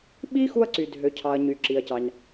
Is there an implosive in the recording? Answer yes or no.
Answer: yes